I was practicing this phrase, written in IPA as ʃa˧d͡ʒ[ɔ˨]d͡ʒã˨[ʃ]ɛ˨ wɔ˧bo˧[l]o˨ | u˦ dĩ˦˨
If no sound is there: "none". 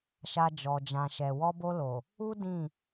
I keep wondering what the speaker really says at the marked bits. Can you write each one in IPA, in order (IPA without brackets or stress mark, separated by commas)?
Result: ɔ˨, ʃ, l